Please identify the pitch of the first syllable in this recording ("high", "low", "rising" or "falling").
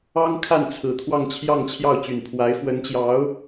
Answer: high